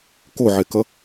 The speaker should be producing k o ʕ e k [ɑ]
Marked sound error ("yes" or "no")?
yes